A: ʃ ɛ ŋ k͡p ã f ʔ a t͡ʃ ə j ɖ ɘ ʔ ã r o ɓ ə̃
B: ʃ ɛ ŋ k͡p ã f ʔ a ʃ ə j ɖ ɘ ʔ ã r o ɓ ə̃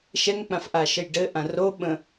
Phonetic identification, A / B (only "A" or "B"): B